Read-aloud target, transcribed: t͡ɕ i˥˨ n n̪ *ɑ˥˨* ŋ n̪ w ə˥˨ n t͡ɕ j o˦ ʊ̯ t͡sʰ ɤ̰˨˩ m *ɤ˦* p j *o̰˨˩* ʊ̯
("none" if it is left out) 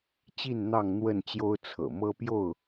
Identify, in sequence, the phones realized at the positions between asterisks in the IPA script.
ɑ˥˨, ɤ˦, o˥˨

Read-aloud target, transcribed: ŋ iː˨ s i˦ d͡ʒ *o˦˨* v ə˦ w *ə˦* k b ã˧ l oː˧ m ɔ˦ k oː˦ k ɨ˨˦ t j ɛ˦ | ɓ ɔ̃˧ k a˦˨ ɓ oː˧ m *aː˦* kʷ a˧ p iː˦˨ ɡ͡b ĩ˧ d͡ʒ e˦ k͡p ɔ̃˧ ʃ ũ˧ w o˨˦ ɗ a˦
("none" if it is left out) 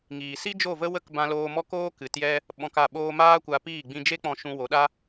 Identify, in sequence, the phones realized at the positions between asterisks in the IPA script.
o˦˨, ə˦, aː˦

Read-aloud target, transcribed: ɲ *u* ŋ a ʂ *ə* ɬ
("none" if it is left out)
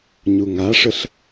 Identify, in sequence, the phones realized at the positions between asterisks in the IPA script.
u, ə

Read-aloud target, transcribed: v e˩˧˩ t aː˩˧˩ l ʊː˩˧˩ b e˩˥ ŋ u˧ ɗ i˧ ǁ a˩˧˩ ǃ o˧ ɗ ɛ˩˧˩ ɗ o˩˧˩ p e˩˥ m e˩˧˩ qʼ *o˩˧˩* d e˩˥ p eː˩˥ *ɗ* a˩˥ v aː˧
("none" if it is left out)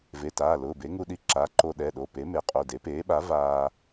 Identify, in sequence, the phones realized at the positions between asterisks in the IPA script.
o˩˧˩, ɓ

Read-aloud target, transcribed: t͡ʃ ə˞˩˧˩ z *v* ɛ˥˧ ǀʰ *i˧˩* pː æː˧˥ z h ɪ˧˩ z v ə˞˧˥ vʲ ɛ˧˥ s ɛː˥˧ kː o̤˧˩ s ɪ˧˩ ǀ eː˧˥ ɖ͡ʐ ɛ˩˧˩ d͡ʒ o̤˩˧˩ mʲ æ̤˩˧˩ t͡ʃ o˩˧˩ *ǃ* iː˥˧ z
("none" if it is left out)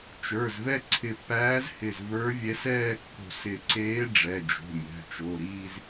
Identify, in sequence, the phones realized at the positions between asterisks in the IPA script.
v, ɪ˧˩, ɾ

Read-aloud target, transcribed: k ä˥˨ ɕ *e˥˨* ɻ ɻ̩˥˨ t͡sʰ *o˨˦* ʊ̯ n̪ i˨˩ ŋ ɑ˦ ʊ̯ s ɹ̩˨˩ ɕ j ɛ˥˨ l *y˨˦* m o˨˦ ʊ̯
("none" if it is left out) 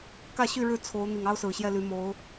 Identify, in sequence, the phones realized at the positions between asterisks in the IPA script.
y˥˨, o˨˦, y˨˦

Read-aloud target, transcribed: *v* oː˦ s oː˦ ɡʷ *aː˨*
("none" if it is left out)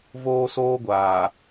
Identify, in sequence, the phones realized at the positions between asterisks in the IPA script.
v, aː˨

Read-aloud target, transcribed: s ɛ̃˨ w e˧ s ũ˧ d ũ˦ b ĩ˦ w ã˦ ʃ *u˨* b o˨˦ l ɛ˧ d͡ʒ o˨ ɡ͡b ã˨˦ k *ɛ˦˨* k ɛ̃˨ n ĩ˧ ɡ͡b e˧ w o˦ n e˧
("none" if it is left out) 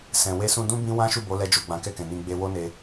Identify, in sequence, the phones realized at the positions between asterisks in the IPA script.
u˦˨, ɛ˦˨

